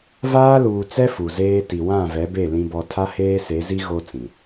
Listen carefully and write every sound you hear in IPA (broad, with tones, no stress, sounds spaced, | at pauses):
v aː˦ l uː˨ t͡s ɛ˦ f u˨ z eː˦ t i˨ w ã˦˨ v ɛ˨˦ b e˦˨ l ĩ˦ b ɔ˦ tʰ a˦ h eː˦ s e˨˦ z i˦ ɣ o˦ t͡s ĩ˨